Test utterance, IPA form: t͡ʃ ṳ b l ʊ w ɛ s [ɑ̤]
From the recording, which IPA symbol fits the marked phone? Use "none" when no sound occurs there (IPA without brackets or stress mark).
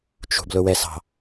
ɑ̤